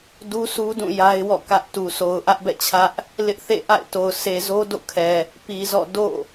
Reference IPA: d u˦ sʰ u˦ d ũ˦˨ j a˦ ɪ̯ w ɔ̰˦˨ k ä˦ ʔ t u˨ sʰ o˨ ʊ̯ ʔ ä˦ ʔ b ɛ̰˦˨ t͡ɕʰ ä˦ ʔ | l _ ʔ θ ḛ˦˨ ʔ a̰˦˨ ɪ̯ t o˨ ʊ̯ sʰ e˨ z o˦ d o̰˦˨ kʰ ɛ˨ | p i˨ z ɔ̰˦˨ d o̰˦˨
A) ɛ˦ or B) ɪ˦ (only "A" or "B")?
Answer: B